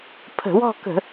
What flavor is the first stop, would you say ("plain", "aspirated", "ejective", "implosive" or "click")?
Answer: aspirated